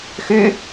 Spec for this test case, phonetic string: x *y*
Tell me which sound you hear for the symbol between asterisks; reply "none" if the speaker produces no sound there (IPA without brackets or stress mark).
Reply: y